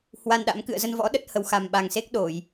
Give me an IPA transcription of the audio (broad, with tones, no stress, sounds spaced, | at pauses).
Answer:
h w a˧ n ɗ a̰˧˥ m k ɨ̰˧˨ ə̯ z ə˧ n v ɔ̰˧˥ ɗ ə˦˥ t̚ h ə˧ w x a˨˩ m ɓ a˨˩ ŋ s e˦˥ k̚ ɗ o˧˩˨ j